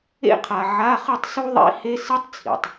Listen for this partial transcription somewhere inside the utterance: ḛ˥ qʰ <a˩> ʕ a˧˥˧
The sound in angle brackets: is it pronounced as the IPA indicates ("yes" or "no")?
yes